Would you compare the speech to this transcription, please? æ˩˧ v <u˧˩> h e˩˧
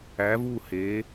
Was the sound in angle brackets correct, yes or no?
yes